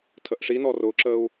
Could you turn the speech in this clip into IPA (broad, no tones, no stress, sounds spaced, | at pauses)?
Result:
tʰ ə ʔ ʂ i n ɔ r ʊ ǁ ə u̯